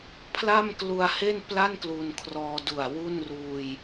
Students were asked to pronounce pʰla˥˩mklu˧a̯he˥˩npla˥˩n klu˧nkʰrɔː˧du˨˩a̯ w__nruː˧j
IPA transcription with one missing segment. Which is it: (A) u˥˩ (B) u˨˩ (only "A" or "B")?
A